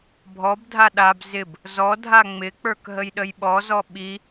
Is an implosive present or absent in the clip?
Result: present